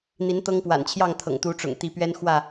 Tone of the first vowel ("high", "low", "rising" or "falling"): rising